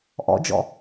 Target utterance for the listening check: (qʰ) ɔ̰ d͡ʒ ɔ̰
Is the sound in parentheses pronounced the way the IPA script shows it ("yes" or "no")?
no